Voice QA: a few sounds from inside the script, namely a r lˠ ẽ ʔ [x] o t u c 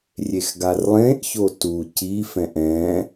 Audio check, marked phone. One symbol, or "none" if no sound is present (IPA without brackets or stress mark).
ç